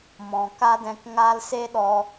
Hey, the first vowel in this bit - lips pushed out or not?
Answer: yes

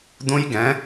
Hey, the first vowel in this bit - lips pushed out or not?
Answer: yes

